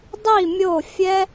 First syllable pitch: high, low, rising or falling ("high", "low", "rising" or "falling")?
falling